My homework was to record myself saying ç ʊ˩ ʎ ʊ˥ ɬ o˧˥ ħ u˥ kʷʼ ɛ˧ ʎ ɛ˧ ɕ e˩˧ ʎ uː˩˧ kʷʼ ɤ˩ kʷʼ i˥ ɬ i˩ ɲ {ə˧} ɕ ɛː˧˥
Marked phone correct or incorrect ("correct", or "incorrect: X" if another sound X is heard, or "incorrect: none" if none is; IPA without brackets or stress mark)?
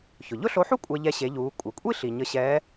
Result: correct